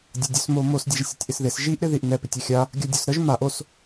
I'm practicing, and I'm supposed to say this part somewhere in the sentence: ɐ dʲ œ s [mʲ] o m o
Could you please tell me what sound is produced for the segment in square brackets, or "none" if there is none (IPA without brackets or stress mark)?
m